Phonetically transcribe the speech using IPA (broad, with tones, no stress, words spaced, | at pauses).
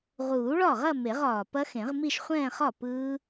ʁuː˨˩˦ɭɒ˥˩ʁɐ˥˧ me˨˩˦ʁɒː˨˩ pɐ˦˥xẽ˨˩˦ʁmi˥˧ʃ χʷɛ̃ː˥˧χɒ˥˩ pɯː˦˥